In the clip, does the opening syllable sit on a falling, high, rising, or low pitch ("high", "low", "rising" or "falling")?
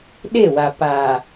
falling